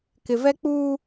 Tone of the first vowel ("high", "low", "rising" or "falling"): low